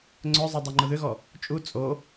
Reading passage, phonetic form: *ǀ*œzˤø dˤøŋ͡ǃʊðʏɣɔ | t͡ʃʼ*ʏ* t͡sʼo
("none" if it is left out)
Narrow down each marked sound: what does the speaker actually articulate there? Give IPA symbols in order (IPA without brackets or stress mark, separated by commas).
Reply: ŋ͡ǀ, u